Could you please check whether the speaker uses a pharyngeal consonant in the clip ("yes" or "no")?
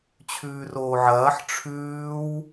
yes